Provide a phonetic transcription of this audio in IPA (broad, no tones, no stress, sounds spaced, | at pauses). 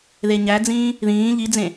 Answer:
ð e ɲ æ d͡z ĩː | ð ĩː ʎ i d͡z ẽ